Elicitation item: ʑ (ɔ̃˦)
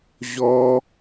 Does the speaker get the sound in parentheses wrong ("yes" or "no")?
yes